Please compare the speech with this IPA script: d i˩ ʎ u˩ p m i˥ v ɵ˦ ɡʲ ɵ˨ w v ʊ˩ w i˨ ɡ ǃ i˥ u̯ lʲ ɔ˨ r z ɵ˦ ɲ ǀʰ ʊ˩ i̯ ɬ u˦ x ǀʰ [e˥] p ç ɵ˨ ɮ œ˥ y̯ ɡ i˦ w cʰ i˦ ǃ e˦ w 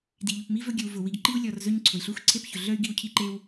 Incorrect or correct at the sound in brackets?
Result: correct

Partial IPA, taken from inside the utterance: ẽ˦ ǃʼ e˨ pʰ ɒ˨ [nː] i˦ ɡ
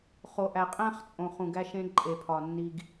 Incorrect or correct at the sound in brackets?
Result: correct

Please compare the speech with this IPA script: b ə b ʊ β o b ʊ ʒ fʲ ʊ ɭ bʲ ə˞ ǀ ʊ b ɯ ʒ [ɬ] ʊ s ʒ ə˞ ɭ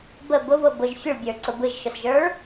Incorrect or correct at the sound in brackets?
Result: incorrect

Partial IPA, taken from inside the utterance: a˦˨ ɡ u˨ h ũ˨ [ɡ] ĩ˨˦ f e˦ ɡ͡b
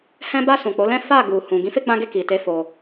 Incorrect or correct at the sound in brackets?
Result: correct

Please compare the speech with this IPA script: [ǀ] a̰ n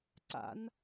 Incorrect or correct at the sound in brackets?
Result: correct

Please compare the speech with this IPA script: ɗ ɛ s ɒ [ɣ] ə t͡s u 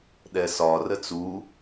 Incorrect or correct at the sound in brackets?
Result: incorrect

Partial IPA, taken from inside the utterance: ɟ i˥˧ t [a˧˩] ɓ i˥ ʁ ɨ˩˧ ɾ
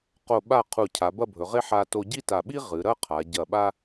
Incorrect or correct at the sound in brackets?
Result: correct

